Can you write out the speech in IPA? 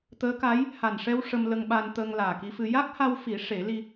t̪ əː˧˥ k a˧˥ j | h a˨˩ n ʂ ɛ˧ w ʂ ə˧ m l ə˧ ŋ ɓ a˧ n t̪ əː˧ ŋ l aː˨˩ k i˧ f ɨ˧ j a˦˥ k̚ h a˧ w f i˨˩˦ ʂ e˨˩˦ l i˧

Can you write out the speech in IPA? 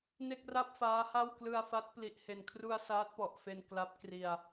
n e˥˩ k̚ r a˥˩ p̚ f aː˦˥ h a˥˩ w k l ɯ˧ a̯ f a˦˥ t̚ p l i˨˩ ʔ h e˨˩ n kʰ r u˧ a̯ s aː˦˥ t̚ p ɔ˨˩ ʔ f e˧ n k l a˦˥ p̚ k r i˧ a̯

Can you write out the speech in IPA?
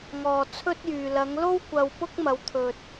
ŋ ɔː˨ t͡sʰ ɵ˥ t̚ j yː˨ l ɐ˨˧ ŋ l o˥ w kʷ ɐ˧ w p ʊ˥ k̚ m ɐ˨˧ w t̪ʰ ɵ˨ t̚

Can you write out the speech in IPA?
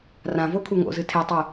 r ã v o kʰ u ŋ o̰ z ɨ tʰ e tˤ u

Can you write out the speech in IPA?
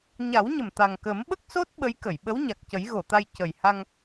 ɲ a˨˩˦ w ɲ ə˨˩ m t̪ a˨˩ ŋ k ə˨˩˦ m ɓ ə˦˥ k̚ s o˦˥ t̚ ɓ ə˧˥ j k ə˨˩˨ j ɓ ə˧˥ w ɲ a˨˩ k̚ c ə˨˩˦ j ɣ o˨˩˨ t̪ a˧ j c ə˨˩ j h a˧ ŋ

